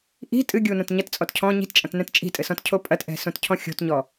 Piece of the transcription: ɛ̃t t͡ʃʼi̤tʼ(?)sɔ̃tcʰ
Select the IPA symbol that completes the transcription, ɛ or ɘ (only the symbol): ɘ